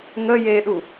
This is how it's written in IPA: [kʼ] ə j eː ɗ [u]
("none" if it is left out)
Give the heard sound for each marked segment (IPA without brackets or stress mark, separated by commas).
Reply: ŋ, u